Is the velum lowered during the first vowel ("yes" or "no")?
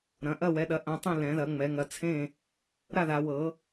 yes